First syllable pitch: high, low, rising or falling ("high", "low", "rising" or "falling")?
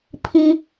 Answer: high